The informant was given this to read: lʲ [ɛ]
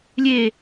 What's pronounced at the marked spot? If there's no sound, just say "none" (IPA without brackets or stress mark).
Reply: e